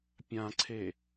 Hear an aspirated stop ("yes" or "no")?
yes